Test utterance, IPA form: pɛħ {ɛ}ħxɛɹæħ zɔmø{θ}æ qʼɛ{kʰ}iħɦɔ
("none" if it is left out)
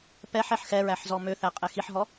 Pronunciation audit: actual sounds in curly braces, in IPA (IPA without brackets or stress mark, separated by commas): ɛ, θ, x